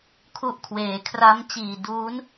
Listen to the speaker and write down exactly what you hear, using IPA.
kʰ u˦˥ ʔ kʰ w eː˩˦ kʰ r a˦˥ m t͡ɕ iː˨˩ d uː˦˥ n

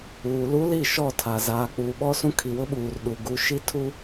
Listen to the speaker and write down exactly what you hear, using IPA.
uː˨ l u˦ l i˦˨ ʃ ɔ˦˨ tʰ a˨ z aː˨ k͡p uː˨ ɓ ɔ˦ s ũ˦ kʰ i˨ w ʊ˦ ɓ uː˨ r ɗ u˨ ɡ u˦ ʃ i˦ tʰ u˦

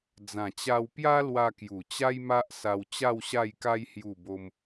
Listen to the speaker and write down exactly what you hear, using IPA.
d͡z ã˨˩ t͡ɕ a˧ w p j a˦ l w a˧ k j u˨˩ t͡ɕ a˦ j m a˦ ʔ s a˧ w t͡ɕ a˥˧ w ɕ a˥˧ j k a˦ j h j u˥˧ b o˦ m

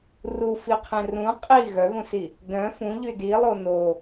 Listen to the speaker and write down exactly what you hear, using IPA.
r u f i qʰ ẽ r ũ qʼ i ɣ œ ɣ ũ s i | d œ̃ f ũ ʎ y d i lˠ o n o

